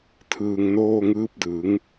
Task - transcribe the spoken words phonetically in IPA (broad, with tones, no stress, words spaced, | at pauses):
tʰɯː˧ŋnoː˥˩ŋɯː˦˥p̚dɯ˩˦ŋ